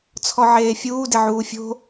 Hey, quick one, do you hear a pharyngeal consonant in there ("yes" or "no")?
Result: yes